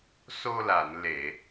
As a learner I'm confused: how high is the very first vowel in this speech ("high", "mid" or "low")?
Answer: mid